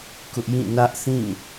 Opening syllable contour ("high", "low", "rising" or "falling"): high